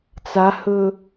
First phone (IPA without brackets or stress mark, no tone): t͡s